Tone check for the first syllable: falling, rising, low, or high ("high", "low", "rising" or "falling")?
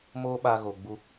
high